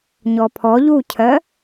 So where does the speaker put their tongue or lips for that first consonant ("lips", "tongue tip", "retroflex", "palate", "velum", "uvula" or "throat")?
palate